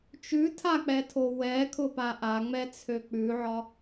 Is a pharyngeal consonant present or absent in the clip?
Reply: present